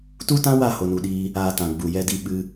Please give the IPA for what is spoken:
tu˦tã˦wa˦˨ ho˧nu˧ɗiː˦ | aː˧tã˨ ɡ͡bu˨jɛ˧di˧ ɓɨ˦

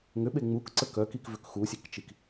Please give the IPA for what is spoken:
ŋʏɓe ŋ͡mukǀə kœkikvʏk xusʲekt͡ʃik

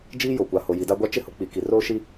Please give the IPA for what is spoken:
d͡ʒiː˦jo˨kʷa˨ ho˨ji˨da˦ɡʷa˦ t͡ʃɪ˦hʊ˨ k͡pi˨ ki˨roː˦ʃi˦

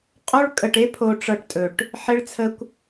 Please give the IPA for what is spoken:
qʼo˦ɭkʼə˧ʈe˦ pʰo˧ʈ͡ʂɤ˧ʈtʼɵ˨ʈ | ħe˦ɭt͡sʰə˦kʷ

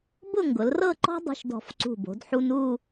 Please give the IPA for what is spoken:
bʊ˥˧ŋɡʊ˩˧lrɤ˥˧ǃɔ̤˥ dˤṳ˧ʃdɔ̤˧˩fǀṳ˧˩bo̤˩˧d ħu˧nu˥˧

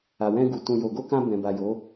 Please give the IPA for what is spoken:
a˨wɛ̃˧ɡu˨ tũ˨jo˨ɡo˧ kã˧ bɛ̃˨ba˨jo˨˦

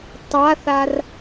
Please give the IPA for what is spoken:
tˤaθar

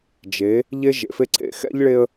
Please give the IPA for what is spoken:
d͡ʒe˨˦ | ʎe˦ʒḛ˨fe˦ǀʰḛ˦ xɛ̰˦ʎɭe˦ə̯

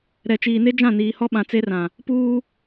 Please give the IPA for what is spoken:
ɾɛ˨t͡ʃiː˨ne˦ d͡ʒã˦˨niː˨hɔ˦ɓã˨ t͡se˦rã˨ | puː˦

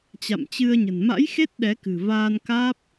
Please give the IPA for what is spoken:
t͡ɕa̰˧˨mt͡ɕɨ˧ə̯ɲə̤˨˩n ma̰˧˥jxe˦˥t̚ ɗɛ˨˦kɨ̤˨˩vaː˧nkaː˦˥p̚

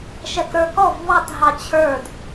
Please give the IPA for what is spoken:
ʃɛkɾə˞kɔv βɑt ɦɑt͡ɕʰə˞d

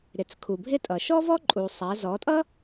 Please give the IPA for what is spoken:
ɾɪ˩t͡skʰu˩bʱɪ˥tʼʌ˩ ʃɔ˥vɔ˥ǃʼu˩ sˤæ˩˧zɔ˩˧tʼʌ˥

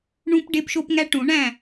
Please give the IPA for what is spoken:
ɳũ˦p ɖe˦pʃo˦pŋæ˦ʈũ˨˩˦ ɳæ̃˥˨

